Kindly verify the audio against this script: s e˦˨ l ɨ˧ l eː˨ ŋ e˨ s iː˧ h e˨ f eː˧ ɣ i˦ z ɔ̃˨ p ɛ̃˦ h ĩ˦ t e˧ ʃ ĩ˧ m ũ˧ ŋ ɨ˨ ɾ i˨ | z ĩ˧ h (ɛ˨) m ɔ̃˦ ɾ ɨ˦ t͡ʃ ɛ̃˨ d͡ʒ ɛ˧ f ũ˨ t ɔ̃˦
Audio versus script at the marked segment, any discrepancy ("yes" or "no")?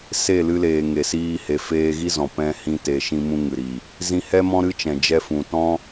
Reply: yes